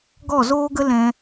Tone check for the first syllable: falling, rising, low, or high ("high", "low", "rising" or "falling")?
falling